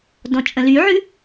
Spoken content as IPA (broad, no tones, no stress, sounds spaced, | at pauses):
d ɔ̃ t͡ʃʼ ə̃ l y ʕ ʉ